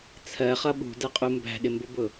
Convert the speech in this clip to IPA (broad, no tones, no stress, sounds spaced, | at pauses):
t͡sʰ ɜ χ ʌ ɓ ṳ d ɜ qʼ u m b æ̤ ɗ ɪ m b ʊ b ʊ